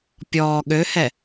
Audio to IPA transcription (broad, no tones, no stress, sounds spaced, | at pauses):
pʲ ɔː ɠ ø h ɛ